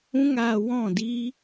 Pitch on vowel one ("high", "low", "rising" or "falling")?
high